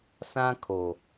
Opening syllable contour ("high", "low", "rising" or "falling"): high